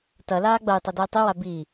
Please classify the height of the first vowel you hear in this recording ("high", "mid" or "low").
low